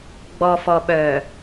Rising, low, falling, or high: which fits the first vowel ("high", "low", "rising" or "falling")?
low